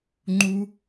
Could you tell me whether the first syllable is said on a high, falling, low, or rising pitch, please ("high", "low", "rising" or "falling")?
high